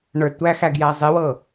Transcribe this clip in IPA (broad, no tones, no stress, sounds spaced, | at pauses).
ɳ ə˞ d tʷ æ x æ ɡ j æ zˤ e w ɤ